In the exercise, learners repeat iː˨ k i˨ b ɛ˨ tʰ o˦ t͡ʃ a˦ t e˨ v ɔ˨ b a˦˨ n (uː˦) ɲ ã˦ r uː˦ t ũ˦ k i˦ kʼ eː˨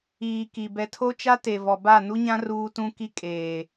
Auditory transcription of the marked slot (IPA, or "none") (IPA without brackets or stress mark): u˦